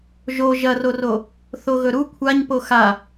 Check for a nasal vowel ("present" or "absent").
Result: absent